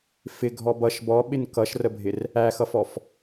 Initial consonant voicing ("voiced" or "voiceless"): voiceless